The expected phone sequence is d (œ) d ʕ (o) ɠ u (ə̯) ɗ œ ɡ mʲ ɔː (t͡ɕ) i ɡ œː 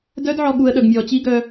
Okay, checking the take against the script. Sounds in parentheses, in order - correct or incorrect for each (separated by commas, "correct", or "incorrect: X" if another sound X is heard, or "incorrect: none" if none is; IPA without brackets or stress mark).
correct, incorrect: ɔ, correct, correct